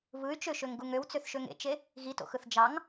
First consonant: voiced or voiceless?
voiced